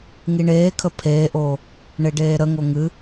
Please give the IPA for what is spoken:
ŋiɳeːkʰə pʰeːʔoː | ɳeɖeːɾəŋo ŋɨ

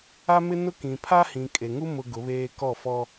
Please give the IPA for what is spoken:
a˦mɪ˦ nʊ˦kĩ˨ pʰa˦hĩ˨kʼe˨ŋu˦ mʊ˦ɡʊ˨˦βeː˦ kɔ˦˨fɔ˦

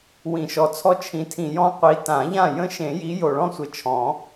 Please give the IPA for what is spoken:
wĩ˨˩˦ʃɔ˨˦t͡sʰɔ˦ t͡ʃʰĩ˨˦tʰĩ˨˩ jɔ̃˦ qʷi˨˦tã˨˩˦ʎã˥˨ jə̃˦ʃẽ˨˩˦ji˨˦ jo˨˩ɭɔ̃˥˨sʷɘ˨˩ t͡ʃʰɔ̃˨˩˦

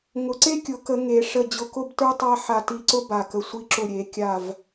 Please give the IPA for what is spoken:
ŋʊ˨˩˦ǀe˥ kʲʊ˨˩˦kə˨˩˦ ŋe˨˩˦ʂə˧˩ d͡ʑʊ˧˩kʊ˥˧btə˞˥tˤa˥˧ ħa˧˩ti˧˩ǀʊ˥ ba˧˩kə˧˩ sʷi˧˩ǁʊ˧˩ɾʲe˨˩˦ kʲa˧˩v

